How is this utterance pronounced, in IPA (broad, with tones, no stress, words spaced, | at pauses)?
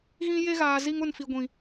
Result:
ɣĩ˦je˦ɣaː˨zi˦ŋ ʊ˦˨nfi˨ɡʷĩ˨